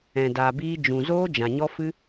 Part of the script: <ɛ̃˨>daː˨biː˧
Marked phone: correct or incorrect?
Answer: correct